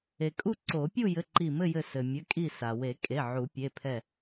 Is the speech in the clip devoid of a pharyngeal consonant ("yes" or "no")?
no